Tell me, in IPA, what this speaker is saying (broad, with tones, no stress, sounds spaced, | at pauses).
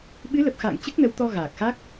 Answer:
ɓ ɨ˨˦ l ə˨˩ p̚ x a̰ː˧˨ ŋ t͡ɕ ɨ˦˥ k̚ n ə˨˦ w t̪ ɔ˧ ɣ aː˨˩ k̚ x a˦˥ k̚